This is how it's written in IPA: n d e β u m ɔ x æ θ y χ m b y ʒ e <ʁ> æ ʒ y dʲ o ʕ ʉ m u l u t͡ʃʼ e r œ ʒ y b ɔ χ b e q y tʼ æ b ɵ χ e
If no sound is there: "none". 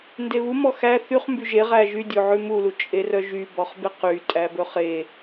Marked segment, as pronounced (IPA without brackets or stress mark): ʁ